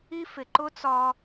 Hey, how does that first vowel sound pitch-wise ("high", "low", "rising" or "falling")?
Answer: high